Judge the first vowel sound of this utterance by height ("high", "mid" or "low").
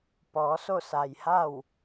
mid